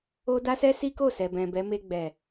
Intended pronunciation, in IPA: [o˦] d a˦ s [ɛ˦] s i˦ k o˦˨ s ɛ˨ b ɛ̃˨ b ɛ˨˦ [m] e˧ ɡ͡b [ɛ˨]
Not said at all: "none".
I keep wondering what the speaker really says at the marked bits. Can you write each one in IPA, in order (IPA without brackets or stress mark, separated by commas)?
o˦, ɛ˦, m, ɛ˨